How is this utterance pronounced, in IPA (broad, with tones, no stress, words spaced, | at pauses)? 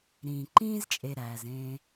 ɾĩː˩ǃĩː˥zt͡ʃʼe˨ɾæː˩z ẽ˨